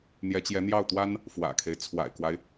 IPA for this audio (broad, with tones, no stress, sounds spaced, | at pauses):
n̪ j ɛ˧˥ t͡ɕ j ɛ˧˥ n̪ j ɑ˥˩ ʊ̯ t̪ w a˥ n | f w ä̰˨˩ kʰ e˦ ɪ̯ t͡sʰ w a̰˨˩ ɪ̯ k w a˦ ɪ̯